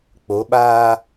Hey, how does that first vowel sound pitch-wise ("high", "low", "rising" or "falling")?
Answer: rising